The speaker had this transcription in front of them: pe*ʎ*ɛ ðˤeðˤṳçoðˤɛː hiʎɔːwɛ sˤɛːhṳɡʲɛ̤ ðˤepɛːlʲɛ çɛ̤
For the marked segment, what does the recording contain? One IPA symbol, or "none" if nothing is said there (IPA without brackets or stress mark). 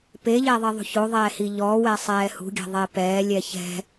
ʎ